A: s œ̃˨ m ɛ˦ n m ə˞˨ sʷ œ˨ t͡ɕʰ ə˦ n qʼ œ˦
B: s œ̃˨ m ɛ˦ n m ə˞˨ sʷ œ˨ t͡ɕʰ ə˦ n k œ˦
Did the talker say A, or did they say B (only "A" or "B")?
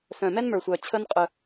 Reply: A